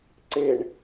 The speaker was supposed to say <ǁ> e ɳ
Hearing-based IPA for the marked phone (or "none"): ǀ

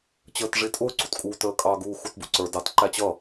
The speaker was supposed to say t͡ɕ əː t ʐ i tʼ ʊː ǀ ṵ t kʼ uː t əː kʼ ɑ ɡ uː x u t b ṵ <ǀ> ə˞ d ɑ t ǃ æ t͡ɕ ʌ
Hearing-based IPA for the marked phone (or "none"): ǀ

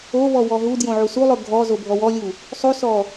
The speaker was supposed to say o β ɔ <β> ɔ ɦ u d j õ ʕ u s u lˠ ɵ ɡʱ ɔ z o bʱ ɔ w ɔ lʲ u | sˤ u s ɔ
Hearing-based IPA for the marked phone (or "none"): w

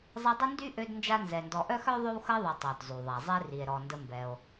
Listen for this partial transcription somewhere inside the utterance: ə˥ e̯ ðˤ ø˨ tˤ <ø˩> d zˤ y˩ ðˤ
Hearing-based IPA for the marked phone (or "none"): œ˩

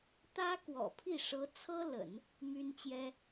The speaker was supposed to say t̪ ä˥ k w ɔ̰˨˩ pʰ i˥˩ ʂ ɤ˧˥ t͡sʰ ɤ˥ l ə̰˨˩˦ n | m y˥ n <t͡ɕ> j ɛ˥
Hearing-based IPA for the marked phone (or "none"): t͡ɕ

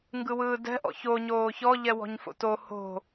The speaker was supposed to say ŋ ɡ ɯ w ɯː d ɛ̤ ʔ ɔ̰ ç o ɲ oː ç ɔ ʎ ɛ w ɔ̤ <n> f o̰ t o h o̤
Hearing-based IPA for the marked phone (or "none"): ɲ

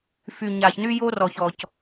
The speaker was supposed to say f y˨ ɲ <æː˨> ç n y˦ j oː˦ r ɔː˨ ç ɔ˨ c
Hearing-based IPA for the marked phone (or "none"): aː˨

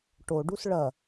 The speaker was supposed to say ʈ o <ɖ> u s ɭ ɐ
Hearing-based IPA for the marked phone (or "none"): ɖ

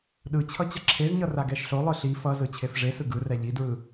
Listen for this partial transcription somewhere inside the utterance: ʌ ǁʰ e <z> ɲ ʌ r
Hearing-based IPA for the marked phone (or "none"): z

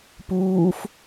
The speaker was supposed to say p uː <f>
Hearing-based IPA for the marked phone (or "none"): f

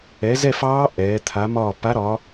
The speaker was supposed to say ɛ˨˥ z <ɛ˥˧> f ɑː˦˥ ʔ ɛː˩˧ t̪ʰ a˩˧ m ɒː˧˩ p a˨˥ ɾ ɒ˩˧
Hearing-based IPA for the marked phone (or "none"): ɛ˥˧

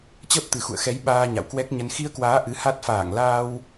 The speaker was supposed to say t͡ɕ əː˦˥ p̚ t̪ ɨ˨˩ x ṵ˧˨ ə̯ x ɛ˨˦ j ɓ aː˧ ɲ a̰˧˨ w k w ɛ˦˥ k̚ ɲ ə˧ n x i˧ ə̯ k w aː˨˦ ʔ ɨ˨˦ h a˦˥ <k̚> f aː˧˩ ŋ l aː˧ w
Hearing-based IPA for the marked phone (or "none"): t̚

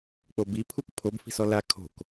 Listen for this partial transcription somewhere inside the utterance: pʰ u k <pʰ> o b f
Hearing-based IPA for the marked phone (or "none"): pʰ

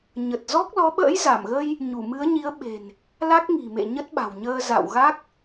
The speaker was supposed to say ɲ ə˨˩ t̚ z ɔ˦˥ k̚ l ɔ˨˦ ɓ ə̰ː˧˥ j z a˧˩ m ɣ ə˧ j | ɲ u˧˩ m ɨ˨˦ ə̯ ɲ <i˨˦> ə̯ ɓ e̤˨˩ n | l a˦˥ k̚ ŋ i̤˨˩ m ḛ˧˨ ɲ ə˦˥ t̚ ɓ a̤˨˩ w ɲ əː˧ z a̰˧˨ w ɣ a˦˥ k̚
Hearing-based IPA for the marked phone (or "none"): i˨˦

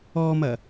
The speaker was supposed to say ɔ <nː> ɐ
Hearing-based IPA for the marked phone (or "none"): m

